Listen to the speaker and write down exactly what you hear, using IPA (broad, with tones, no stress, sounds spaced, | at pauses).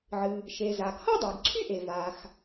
ʕ ɨ˩ | ʃ e˩ z a˩ ɡ h ʌ˥ dˤ y˩ ɡ ǀʰ y˥ ʔ e˩ v a˩ x